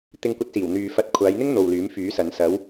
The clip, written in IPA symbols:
t̪ɪ˧ŋkʷɐ˧t̚siː˨˩w n̪yː˨fɐ˧t̚ kʷʰaː˨˧jn̪ɪ˥ŋ n̪o˨wlyː˨˥mfyː˨˥sɐ˨˧n sɐ˨˧w

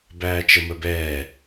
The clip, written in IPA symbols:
bæːt͡ʃəməbɛː

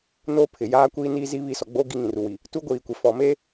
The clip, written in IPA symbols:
noː˦pʰɪ˨jaː˦kʷiː˦ niː˦zi˦βi˦˨sɔ˨ ɡ͡bo˦ ɡi˦ŋĩ˨ru˨wi˨ | tu˦ɡʷiː˨kʷe˨ fɔ˨meː˦

